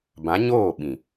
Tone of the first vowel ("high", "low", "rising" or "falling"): rising